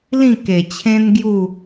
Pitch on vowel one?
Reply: falling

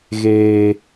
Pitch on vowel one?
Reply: high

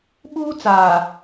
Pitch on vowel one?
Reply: high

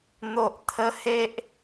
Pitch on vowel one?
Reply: low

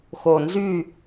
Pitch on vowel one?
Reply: low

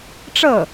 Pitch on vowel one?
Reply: falling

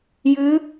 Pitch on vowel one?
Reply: rising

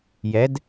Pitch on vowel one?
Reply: rising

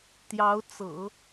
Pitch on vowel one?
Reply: rising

